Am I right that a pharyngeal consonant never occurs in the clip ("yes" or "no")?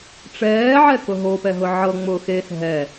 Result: no